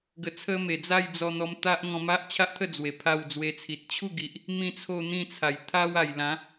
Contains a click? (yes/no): no